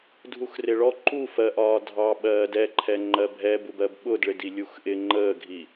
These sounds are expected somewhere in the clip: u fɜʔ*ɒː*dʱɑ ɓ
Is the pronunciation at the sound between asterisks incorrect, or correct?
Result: correct